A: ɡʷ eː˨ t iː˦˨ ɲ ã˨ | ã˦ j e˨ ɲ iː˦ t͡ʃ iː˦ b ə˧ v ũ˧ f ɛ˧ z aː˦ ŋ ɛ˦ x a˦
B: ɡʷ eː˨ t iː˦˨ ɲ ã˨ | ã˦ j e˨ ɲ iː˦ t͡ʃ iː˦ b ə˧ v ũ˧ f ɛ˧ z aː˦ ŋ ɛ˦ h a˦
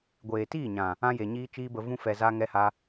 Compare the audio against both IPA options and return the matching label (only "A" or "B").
B